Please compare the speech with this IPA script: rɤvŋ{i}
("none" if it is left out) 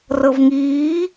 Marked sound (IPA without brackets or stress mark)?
iː